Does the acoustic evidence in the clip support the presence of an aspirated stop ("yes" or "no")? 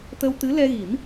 no